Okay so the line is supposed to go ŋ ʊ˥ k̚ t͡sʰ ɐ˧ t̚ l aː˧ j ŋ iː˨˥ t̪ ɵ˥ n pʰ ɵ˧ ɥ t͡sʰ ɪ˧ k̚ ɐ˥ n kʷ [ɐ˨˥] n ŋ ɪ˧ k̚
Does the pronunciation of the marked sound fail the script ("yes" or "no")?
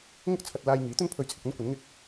no